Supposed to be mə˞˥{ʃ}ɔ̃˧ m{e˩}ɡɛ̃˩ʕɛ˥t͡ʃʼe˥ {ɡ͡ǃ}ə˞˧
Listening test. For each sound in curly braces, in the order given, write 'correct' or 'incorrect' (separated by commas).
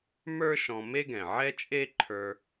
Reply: correct, incorrect, incorrect